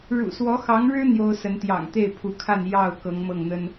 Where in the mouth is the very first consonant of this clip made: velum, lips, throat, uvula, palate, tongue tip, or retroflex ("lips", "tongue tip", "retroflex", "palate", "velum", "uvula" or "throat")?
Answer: retroflex